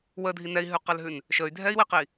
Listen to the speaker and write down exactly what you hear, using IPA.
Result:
w ə dʱ i n ɛ i̯ ɦ ʉ q ɛ l ɦ ʉ n | ʃ ə y̯ dʱ ɛ i̯ w i q i

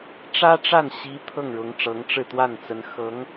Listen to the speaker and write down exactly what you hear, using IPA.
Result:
ʈ͡ʂ ä˥ ʈ͡ʂ a˥˩ n ɕ i˧˥ t̪ʰ ɤ˥˩ ŋ ɻ ʊ˧˥ ŋ ʈ͡ʂ ɤ˧˥ ŋ ʈ͡ʂ ɻ̩˥˧ t̪ w a˥˩ n t͡s ə˧˥ n x ɤ˧˥ ŋ

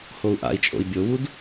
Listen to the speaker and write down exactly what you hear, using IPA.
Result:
h o u̯ ʔ a̰ i̯ t͡ʃʼ o̰ i̯ bʲ o w u d

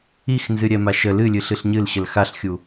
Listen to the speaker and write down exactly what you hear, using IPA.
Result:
i x n z ɨ ɾʲ ɛ m a ʃ ə l ɨ lʲ ɨ ɬ ɨ ɬ ɲ ɨ l ɕ ə l x a ɬ xʲ u

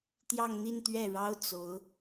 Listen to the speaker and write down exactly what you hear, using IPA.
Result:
t̪ j ɑ˥˧ ŋ n̪ i˥˧ n t̪ ɥ ɛ˥˩ ɻ ɑ˥ ʊ̯ t͡s o˧˥ ʊ̯

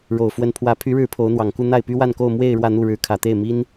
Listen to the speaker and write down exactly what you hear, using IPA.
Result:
ɻ o˨˩ ʊ̯ f w ə˧˥ n pʰ w ä˧˥ pʰ y˧˥ ɻ ɻ̩˧˥ pʰ o˧˥ ʊ̯ n̪ w ɑ˨˩ ŋ k u˥˧ n̪ a˥˩ ɪ̯ p y˥ w a˥˧ n k o˥˧ ʊ̯ m w e˥˧ ɪ̯ ɻ w ä˥˧ n̪ u˥˩ ɻ ɻ̩˧˥ kʰ ä˨˩ t̪ e˥˩ ɪ̯ m i˥ n

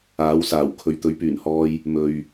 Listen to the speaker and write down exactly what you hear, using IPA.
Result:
aː˨˥ w s aː˨˩ w kʰ ɵ˨ ɥ t̪ ɵ˨˥ ɥ p yː˨˩ n h ɔː˧ j | m ɵ˨ ɥ

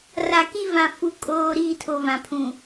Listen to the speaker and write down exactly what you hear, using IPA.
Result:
r a˨ k i˦ v ã˨ f u˨ kʼ oː˨ ɾ iː˦˨ tʰ o˨ v ã˨ pʰ ũ˨

